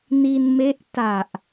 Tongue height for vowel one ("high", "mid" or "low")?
high